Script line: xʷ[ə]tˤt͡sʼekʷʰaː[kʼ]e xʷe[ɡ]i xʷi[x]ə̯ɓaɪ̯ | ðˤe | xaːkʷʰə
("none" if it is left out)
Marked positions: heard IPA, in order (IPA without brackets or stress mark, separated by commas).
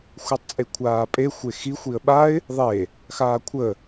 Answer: ɛ, pʼ, x, none